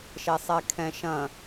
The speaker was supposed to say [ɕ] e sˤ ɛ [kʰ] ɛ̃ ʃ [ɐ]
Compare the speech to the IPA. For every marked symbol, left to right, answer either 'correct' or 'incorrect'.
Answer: incorrect: ʃ, correct, incorrect: ɐ̃

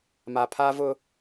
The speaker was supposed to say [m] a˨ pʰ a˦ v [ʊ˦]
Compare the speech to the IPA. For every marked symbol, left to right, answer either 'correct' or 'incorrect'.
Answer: correct, correct

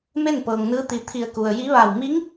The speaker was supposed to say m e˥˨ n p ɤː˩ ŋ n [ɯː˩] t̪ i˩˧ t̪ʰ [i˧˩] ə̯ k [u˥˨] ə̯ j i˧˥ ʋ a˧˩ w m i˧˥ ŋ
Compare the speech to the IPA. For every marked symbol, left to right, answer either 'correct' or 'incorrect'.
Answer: incorrect: ɯː˧˥, correct, incorrect: u˩

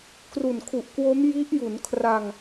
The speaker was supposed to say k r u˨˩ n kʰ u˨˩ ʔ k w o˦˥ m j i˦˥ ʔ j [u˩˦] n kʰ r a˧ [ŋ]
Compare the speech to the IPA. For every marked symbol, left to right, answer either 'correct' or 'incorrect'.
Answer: correct, correct

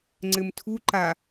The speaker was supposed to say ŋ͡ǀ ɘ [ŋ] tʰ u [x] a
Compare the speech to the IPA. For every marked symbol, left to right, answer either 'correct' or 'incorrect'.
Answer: incorrect: m, incorrect: ǃ

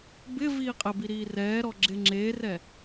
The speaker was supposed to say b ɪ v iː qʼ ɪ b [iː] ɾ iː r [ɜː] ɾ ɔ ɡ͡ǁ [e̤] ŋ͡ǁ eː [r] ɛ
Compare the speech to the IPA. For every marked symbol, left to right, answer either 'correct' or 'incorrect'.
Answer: incorrect: i, incorrect: ɛː, incorrect: e, correct

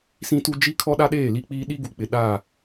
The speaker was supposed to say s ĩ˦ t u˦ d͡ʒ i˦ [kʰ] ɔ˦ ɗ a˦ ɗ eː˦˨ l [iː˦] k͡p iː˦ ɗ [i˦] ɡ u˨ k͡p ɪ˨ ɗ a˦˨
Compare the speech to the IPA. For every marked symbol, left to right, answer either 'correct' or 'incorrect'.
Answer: correct, incorrect: i˦, correct

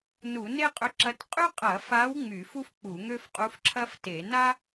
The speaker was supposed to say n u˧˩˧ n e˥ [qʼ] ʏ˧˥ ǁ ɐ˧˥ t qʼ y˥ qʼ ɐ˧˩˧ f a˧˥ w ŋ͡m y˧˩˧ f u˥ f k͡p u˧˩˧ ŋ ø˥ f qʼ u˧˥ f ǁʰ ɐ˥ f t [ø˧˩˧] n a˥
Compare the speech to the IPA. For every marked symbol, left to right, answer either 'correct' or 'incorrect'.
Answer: correct, incorrect: e˧˩˧

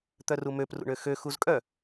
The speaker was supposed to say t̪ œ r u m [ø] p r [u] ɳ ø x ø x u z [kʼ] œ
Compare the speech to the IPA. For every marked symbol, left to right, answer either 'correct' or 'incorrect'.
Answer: correct, incorrect: ṵ, correct

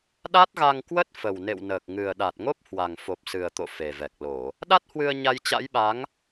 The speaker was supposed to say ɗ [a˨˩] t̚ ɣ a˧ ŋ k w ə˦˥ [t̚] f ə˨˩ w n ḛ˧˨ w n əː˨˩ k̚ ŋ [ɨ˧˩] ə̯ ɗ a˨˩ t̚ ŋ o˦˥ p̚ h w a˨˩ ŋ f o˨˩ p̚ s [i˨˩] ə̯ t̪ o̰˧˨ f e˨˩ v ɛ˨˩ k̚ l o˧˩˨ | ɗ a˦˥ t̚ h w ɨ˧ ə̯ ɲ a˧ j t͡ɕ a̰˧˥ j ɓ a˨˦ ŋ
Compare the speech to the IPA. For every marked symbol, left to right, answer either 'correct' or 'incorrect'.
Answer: incorrect: a˦˥, correct, incorrect: ɨ˨˩, incorrect: ɨ˨˩

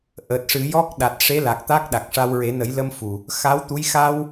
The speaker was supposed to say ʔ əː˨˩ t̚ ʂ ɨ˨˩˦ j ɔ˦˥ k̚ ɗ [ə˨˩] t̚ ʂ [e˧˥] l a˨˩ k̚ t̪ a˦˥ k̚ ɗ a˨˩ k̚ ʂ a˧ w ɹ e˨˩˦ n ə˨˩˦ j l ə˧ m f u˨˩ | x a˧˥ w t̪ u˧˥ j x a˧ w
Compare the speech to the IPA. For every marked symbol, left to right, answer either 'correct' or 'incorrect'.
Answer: incorrect: a˨˩, correct

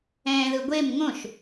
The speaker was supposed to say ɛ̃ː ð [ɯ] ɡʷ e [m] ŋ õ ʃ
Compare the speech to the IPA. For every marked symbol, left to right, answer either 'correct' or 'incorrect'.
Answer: correct, correct

